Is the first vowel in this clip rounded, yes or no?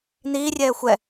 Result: no